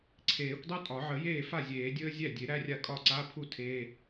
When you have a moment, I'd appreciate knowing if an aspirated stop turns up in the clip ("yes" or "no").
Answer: yes